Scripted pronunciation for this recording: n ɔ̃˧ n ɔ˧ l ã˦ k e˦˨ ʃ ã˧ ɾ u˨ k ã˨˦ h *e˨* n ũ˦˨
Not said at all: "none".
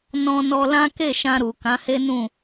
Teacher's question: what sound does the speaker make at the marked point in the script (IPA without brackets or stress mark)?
e˦